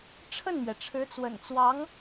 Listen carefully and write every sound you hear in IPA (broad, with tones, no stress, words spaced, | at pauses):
ʈ͡ʂʰə˥˩nmɥɛ˩ʈ͡ʂʰɻ̩˧˥t͡swə̰˨˩n t͡swɑ˧˥ŋ